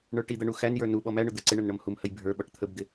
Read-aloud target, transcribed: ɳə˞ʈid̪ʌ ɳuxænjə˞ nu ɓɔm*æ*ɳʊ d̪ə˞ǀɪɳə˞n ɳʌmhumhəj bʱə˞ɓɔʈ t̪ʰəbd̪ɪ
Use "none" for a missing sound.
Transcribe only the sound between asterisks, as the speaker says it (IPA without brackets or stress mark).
æ